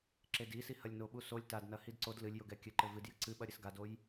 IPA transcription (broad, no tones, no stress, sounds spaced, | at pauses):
ǁ e d i s i h ɐ lʲ n o ɓ u s o lʲ t a d n ɐ h i d ǀ o d l ɨ lʲ j o ɡ ɛ kʲ ɘ ǃ ɘ v ɨ d j ɘ ǀ ɨ ɓ ɐ ɾʲ ɘ s ɡ a d o j